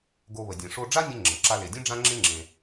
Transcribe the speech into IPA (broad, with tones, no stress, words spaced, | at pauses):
ɡo˧βə˩ dʲẽ˩ʂo˧ɖ͡ʐa˥nʲẽ˧ ŋ͡ǁə̃˩ ǁa˧le˩dʲẽ˥ ɖ͡ʐã˥ŋ͡ǁẽ˥ŋ͡ǁẽ˩